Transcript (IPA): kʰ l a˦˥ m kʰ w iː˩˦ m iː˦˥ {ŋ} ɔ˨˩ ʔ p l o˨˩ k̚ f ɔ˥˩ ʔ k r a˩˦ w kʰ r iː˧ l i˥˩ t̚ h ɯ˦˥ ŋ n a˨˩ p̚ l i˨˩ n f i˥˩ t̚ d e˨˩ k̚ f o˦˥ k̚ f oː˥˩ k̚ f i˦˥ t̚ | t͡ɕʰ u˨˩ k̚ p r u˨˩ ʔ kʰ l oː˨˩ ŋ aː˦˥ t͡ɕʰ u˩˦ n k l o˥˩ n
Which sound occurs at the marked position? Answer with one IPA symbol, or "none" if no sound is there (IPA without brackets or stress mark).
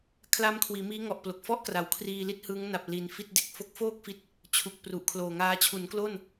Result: ŋ